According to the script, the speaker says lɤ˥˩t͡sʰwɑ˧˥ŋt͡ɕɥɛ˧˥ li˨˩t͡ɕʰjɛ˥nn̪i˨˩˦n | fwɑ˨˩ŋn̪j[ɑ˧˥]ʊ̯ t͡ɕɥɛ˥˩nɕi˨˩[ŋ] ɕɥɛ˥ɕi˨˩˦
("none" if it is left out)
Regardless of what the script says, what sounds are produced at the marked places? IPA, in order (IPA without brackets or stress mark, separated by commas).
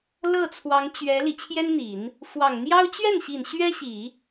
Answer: ɑ˥, n